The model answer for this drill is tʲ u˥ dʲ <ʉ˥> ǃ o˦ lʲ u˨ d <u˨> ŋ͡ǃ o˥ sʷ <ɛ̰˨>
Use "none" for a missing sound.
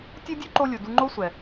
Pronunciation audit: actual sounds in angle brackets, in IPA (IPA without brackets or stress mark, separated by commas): ʉ˥, u˦, ɛ˨